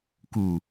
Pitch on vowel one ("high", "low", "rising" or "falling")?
low